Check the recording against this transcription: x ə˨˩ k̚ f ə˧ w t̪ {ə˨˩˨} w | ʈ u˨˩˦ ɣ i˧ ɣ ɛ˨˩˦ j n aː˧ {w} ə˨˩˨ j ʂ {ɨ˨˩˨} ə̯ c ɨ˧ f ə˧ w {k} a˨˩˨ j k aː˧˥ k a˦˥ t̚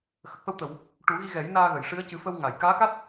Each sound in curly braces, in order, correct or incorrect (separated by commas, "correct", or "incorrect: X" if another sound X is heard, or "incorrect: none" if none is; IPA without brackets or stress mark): correct, incorrect: ɣ, incorrect: ɨ˧˥, incorrect: ŋ